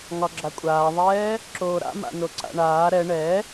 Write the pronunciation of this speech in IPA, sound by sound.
ŋ ɒ ɡ͡ǁ a kʷʼ aː ðˤ ɛː | ǁ oː ɾ a̰ m a̰ n o ǀ a̰ ɳ aː ɾ ɛ ɳ ɛ

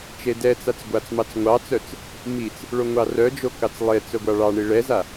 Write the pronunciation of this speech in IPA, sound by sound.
t͡ʃ e d ɛ t͡s a t͡s ɡʷ a t͡s m ɑ t͡s ŋʷ ɑ t͡s œ t͡s | m i t͡s | ɭ o ŋʷ ɑ r œ d͡ʒ o k ɑ t͡s lˠ e t͡s œ ɡʷ ɑ ɭ ɑ ɳ i ɭ ɛ z a

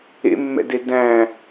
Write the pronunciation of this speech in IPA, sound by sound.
ḛ mː ɛ̰ d e d æ̃

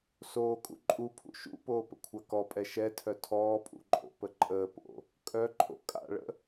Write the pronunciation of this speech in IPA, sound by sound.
s oː kʼ ṵ ǃʼ u pʰ ṵ ʃ ṵ p oː p ə̰ kʷʰ a k ɔ pʼ ɛ ʃ ɛ tʰ œ tʰ ɔː pʼ ṵ ǃʼ o̰ p ə ǃʼ əː p o̰ | kʼ œ ǃʼ o̰ kʼ a̰ ɭ ə̰

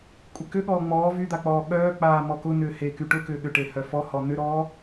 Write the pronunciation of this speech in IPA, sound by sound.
kʷʼ ɪ k ʏ ɠ ɔː ŋ͡m ɔː v y d̪ a k͡p ɔː ɠ œː k͡p aː m ɔ k ʊ n ʏː h e k y ʈ ʊ k ʏː ɠ ʏ ʈ e h œ f ɔ h ɔ n̪ ʏ ɾ ɔː

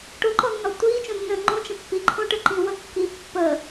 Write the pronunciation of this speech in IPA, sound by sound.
ʈ o ǃ ɔ nː ɔ tʷ iː t͡ʃ õ nː ə̃ː ŋ͡ǃ õ t͡ʃ ə̃ pː i ǃʰ õ ʈ ə ǃ ĩ w ə kː i pː əː

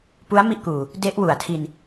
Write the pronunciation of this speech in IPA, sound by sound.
p u˦˥ a̯ m i˥˩ ʔ k uː˨˩ | d e˦˥ ʔ w u˨˩ a̯ tʰ i˧ n

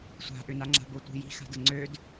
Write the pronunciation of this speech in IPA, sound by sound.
sʷ a̤ ʔ ʏ n a ŋ͡ǁ a̤ b o tʷ i̤ j i̤ x a̤ d ə ŋ͡ǀ ø d

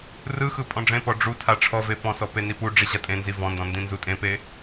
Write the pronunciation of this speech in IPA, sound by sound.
r ɯ x ɯ pʼ ɔ̃ ɖ͡ʐ ẽ p ɔ ɖ͡ʐ u tʰ a ʈ͡ʂʰ ɔ v e p ɔ̃ s ɔ p e n i p u ɖ͡ʐ i ʑ a tʼ ẽ n z i v ɔ̃ n d ɔ̃ n d ĩ n z u tʼ ẽ p e

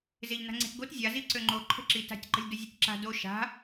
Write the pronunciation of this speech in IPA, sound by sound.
z e ʎ n a̤ ŋ͡ǀ e̤ t ɡ o t zʲ a z i ǀ ø ŋ͡ǃ o ǃʰ ə̤ ǁ i t a̤ tʲ ǃ ə̤ lʲ d ə zʲ ɛ tʲ ǁ a̤ d o ʃ a̤

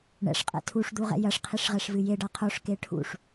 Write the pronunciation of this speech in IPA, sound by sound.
ɳ ɛ̰ ʂ qʼ ɛ̰ tʰ u ʂ d̪ u ʁ ɛ̰ j ɐ ʂ qʰ i ʂ ʁ ɛ ʂ v ɨ j e ɖ a qʰ o ʂ k e ʈʰ ṵ ʂ

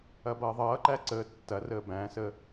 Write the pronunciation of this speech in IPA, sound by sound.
ɐ b ʌː ðˤ ʌː ǃ æ ǀ əː tː ɐ r əː b æ̃ s ə

